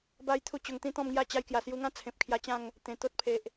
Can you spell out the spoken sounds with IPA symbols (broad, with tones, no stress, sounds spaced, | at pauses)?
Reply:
b a˦ j t̪ʰ u˥˧ t͡ɕ o˧ ŋ t̪ ĩ˦ t̪ ɔ̃˥˧ m ŋ j a˥˧ t͡ɕ a˧ j k j a˨˩ s j u˧ ŋ ã˦ t͡sʰ ẽ˨ p̚ kʰ j a˧ t͡ɕ ã˥˧ ŋ | t̪ ẽ˨˩ t̪ o˦ t̚ pʰ e˨ ʔ